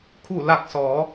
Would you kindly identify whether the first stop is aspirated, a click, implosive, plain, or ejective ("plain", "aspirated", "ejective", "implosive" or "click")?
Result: aspirated